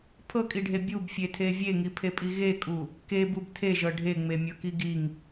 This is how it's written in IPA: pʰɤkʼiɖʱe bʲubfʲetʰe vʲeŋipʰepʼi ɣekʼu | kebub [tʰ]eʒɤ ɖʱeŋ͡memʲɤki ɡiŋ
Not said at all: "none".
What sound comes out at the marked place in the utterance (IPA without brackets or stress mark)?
tʰ